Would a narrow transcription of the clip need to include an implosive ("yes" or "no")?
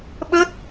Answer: yes